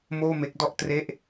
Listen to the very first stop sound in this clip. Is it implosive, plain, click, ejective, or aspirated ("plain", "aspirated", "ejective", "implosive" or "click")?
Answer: plain